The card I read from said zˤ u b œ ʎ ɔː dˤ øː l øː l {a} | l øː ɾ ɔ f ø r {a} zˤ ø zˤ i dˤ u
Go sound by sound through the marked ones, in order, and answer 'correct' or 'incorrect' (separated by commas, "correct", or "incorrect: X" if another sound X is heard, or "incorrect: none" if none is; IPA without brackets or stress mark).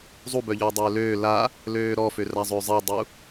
correct, correct